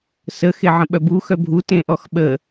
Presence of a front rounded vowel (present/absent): present